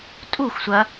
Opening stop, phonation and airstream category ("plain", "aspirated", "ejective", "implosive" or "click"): ejective